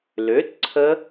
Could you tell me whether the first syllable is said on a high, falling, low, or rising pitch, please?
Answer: rising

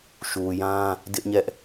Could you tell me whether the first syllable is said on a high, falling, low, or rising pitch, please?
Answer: low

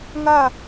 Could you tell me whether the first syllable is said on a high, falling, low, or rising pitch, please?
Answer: falling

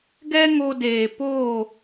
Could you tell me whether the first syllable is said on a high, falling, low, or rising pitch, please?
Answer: high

